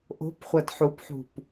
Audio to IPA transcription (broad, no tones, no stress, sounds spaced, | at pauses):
ʔ o̤ p χʷ ɐ d ħ u p ħ ṳ p